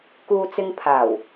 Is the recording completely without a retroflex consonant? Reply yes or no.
yes